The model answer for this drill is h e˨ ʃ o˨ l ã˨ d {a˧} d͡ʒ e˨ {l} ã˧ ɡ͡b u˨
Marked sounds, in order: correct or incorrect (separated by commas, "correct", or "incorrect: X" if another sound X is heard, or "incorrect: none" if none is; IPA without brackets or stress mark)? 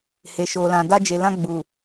correct, correct